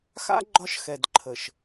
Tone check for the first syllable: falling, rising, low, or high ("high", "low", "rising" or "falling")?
high